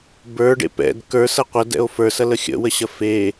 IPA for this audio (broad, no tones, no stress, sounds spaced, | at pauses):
b ə˞ ɖ ḛ p ɛ̰ d k ə˞ s ɐ qʷ ɐ d ɛ̰ o̯ f ə˞ s ɐ l ə xʲ ə̰ w ə ɕ ɐ f e